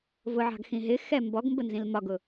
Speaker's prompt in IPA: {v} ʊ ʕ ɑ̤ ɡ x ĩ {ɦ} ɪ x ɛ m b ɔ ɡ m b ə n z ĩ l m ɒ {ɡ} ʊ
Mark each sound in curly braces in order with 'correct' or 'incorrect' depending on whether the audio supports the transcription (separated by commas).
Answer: correct, correct, correct